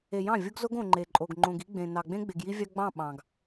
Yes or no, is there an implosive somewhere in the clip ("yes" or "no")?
yes